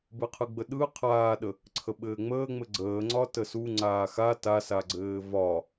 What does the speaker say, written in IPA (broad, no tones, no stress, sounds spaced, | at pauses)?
b ɯ qʰ ɯ ɡ͡b ə ɗ ɯ qʰ aː ɗ ə | ǀʰ ə ɓ ɘː ŋ͡m əː ŋ͡m ɘ ɡ͡ǀ əː ŋ͡ǀ ɒ t ə s u ŋ͡ǀ aː x a t a s a ɡ͡ǀ ɘː v ɒ